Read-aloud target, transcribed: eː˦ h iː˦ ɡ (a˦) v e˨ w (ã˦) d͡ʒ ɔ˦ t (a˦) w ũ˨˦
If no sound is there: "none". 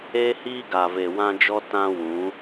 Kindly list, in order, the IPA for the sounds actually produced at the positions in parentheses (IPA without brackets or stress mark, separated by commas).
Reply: a˨, ã˦, ã˦